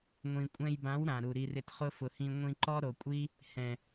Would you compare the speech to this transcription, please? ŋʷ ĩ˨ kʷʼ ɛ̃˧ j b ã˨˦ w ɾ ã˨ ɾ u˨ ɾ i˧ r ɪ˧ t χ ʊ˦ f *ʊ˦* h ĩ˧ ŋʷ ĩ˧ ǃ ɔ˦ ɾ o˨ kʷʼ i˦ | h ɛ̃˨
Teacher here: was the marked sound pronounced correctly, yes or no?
no